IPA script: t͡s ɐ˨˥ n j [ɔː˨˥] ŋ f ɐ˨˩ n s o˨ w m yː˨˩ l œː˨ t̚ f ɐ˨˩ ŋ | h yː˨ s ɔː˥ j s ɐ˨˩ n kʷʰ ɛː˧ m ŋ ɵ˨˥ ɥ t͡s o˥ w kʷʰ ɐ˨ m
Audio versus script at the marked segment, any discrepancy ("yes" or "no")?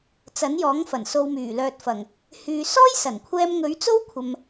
no